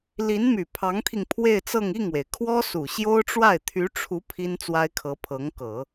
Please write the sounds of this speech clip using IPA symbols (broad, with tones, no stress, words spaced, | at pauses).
li˧˥nmy˨˩ pʰɑ˧˥ŋt̪ʰi˧ŋ pʰwe˥˧ɪ̯t͡sɤ˥˧ŋ i˥˩ŋwe˩ɪ̯kʰwɔ˥ su˨˩ɕjo˥ʊ̯ʈ͡ʂwa˥˩ɪ̯ t̪ʰy˧˥ʈ͡ʂʰu˧˥ pʰi˥nt͡swa˥ɪ̯kʰɤ˧˥ pʰɤ˧˥ŋkɤ˨˩˦